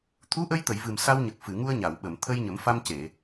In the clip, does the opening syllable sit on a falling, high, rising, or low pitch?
rising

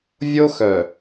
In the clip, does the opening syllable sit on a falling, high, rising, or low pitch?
high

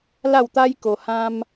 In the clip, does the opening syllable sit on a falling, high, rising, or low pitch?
falling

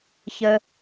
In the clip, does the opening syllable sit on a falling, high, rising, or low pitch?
high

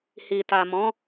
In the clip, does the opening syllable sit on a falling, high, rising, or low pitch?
low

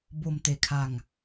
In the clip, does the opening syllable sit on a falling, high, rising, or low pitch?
low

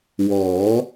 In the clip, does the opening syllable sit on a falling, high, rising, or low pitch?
rising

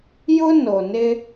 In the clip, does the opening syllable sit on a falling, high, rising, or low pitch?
high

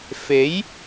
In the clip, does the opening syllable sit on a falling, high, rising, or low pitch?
rising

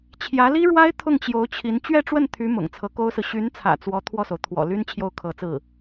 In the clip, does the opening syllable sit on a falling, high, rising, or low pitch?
rising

